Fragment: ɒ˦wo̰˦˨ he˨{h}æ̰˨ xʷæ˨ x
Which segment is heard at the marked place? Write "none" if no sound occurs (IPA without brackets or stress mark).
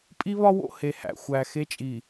h